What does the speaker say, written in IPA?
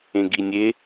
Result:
ẽ ɡ i nʲ e

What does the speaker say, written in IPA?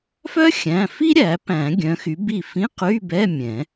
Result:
f œ˥ xʲ æ̃˩˧˩ f i˥ ɾʲ æ˨˩˦ p æ̃˨˩˦ ɡʲ œ̃˨˥ x y˨˥ b i˥˩ f ĩ˧˥˧ q y˧˥˧ b ɛ˧˥˧ mʲ ɛ̃˨˩˦

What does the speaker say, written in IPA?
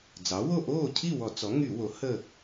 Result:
d͡z ɑ˩˥ w o˥˨ ʔ oː˥˨ cʰ i˥˨ w ɔ˧˩˧ t͡s ɔ˩˥ ŋ y˧˩˧ w o˩˥ h ə˥˨

